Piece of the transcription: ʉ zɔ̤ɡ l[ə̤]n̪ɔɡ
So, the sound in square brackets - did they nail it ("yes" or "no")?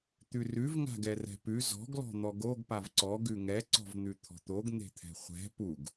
no